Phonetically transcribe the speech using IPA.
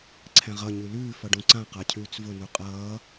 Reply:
ǀʰɛ̃ʁʌ ɲʉlʉː fʌɖũǀã qacʰʉːt͡svʊ nuqʼʌː

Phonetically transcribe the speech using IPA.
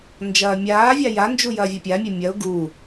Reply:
nd͡ʒɐːmʲaːvʲa jand͡ʒu jɐːvʲɐpʲamʲe mʲɐʊ̯ ɡu

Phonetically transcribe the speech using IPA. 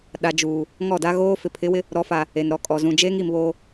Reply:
ɗa˨d͡ʒuː˨ | ŋɔ˦˨da˦ɣoː˦ fɪ˨pʰɪ˨˦wɪ˦ | ɾɔ˨˦fa˨ | e˨nɾɔ˨˦kʼɔ˨ zũ˨d͡ʒeː˦ŋi˨m βoː˦

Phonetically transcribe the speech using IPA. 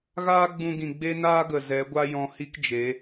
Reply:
ɣaː˦ɡ͡bũ˧ɡĩ˨ ɡ͡be˦naː˦ɡə˨ zɛ˨˦ ɡʷa˦jɔ̃˧ hi˦kd͡ʒe˨˦

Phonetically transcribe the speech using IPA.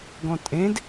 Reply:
ɡɔ̃tʼẽd

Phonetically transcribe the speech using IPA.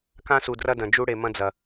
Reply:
kã˦su˨drɐ˦dɐ̃˨ d͡ʒu˦ɽe˨mɐ̃˦d͡zɐ˨

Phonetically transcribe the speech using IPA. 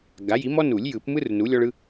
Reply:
ɡa˩˥ji˩˥ mɔ˦ nu˨˩˦lʲjɯ˨˩˦pmɯ˦r nu˩˥lʲɔ˦ɭɯ˦

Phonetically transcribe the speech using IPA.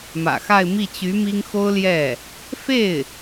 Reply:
mä̰˨˩xa˥˧ɪ̯ mi˥˩t͡ɕy˧˥ mi˥ŋ xo˥ʊ̯ljɛ˥˩ | fe˥˩ɪ̯

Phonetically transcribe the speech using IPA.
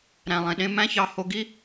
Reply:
ɾæ̃˩lˠẽ˩ɗẽ˧ mæ̃˥çɑ˧ ho˧ɡi˥

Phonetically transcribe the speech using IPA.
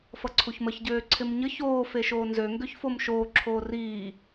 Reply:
fʌǀʰuçməç ɟøːǀʰɪmɲə çoː feʃoːnzø ŋɡøçfomʃoː ǁʰoːriː

